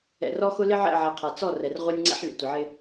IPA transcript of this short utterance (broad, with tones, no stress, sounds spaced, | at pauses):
ɛ̰˨ r ɔ˦ x ʊ˦ l ɪ˦ ʕ ɛ̰˦˨ ʕ ɛ˨ qʰ a˨ t͡s ɔ˦˨ r ɛ˨ r ʁʷ ɛ˦ nʲ ŋ͡ǀ ɛ̰˦ ħ lʲ ə̰˨ tʷ ɪ˨ ʕ ɪ˦